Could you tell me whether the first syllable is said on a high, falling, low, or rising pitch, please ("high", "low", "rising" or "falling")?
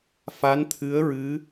rising